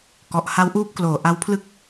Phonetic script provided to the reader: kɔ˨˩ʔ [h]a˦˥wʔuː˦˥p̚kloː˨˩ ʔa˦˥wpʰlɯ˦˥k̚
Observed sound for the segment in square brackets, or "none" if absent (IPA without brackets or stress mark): h